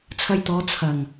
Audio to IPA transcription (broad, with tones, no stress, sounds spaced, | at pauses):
t͡sʰ ɐ˧ j t̪ ɔː˨˧ t͡sʰ ɐ˨˩ ŋ